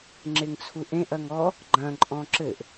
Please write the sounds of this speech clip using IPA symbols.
ŋ͡ǁ e ŋ t͡sʰ u ʔ ẽ ʔ ɐ ŋ ɔ | ɡ͡ǃ ɐ̃ ǃʼ ɔ̃ ǁ ɘ ʔ

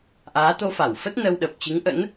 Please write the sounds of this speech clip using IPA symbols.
ʔ aː˨˦ t̪ o˧ f a˧˩ w f ə˦˥ t̚ n ə˧ w ɗ ə˨˩ p̚ t͡ɕ ɨ˨˦ ŋ ʔ ə̰˧˥ n

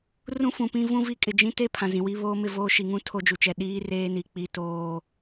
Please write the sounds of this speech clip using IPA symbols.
r ũ˦ f ũ˨ p ĩ˦ v ũ˦ v i˦ kʼ ɪ˨ d͡ʒ ĩ˦ t e˦ pʰ ã˨ z ĩ˨ w i˦ β oː˦ m ɪ˦˨ v oː˦ ʃ i˨ ŋ ũ˦ tʰ o˦ d͡ʒ u˨ t͡ʃ ɛ˨ ɗ iː˦ r eː˦ n i˨ k͡p i˦ t oː˦

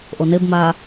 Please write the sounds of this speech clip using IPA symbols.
ʔ o n e b m aː

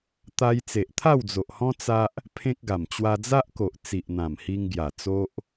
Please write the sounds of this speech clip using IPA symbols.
t̪ a˧ j t͡s e˨ ʔ t̪ʰ a˥˧ w d͡z o˨ ʔ h ɔ̃˦ t͡s a˦ ʔ | pʰ ẽ˦ k̚ ɡ a˨˩ m t͡ɕ w a˧ d͡z a˦ ʔ k o˨ ʔ t͡s i˨ ʔ n̪ ã˨˩ m h i˧ ŋ ɡ j a˨˩ t͡s o˦ ʔ

